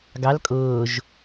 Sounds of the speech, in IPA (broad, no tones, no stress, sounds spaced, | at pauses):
ɡ ɑ l kʼ ʊː ʒ